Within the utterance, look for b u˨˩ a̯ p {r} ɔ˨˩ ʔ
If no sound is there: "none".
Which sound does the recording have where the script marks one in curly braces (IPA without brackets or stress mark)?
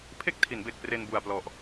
l